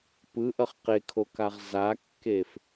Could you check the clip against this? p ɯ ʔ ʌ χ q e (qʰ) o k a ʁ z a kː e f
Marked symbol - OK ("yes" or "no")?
no